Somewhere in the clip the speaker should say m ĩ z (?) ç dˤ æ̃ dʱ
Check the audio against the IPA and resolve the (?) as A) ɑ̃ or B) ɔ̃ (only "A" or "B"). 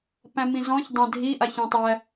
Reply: B